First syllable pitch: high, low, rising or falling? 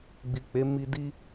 low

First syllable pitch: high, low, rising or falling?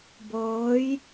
rising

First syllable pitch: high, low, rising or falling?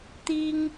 high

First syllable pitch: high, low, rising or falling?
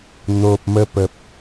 low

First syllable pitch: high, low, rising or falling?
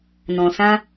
low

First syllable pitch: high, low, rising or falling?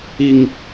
low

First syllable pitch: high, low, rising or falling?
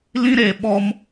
high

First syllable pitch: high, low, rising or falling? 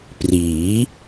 rising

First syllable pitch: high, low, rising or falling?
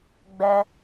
high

